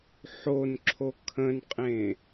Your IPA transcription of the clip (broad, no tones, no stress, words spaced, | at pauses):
ħonǁʰo kʰə̃nqʼẽ